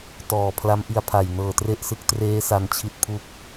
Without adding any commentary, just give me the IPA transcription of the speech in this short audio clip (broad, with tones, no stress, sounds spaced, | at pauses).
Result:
t ɔː˨˩ pʰ l a˦˥ m ʔ i˧ a̯ pʰ a˨˩ j n ɤː˨˩ t r e˥˩ ʔ s ɯ˦˥ k̚ t r eː˦˥ s a˧ n t͡ɕʰ i˦˥ t̚ pʰ u˦˥ k̚